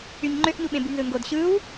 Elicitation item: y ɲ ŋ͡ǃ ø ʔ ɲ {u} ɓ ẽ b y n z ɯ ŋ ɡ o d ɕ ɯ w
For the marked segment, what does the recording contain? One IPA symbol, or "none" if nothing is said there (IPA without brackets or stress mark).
u